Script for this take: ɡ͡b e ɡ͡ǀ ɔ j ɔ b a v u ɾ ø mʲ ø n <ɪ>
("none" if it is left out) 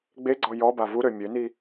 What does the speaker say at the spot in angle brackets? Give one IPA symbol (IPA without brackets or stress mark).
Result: i